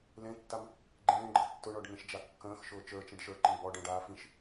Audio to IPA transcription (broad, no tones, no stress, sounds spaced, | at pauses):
l ẽ tː a m | ɡ͡ǃ ẽː ɡ͡ǃ ɤ tː ʊ ɳ ɔ ɖ ŋ ẽ ʃ d͡ʒ a kː ə̃ː x ʃ ʊː t͡ʃ ə˞ t͡ʃ ẽ ɖ ʃ ə˞ ǃ ĩ ɡ͡b ɔ ɖ ə̃ː ɖ aː f ĩ ʃ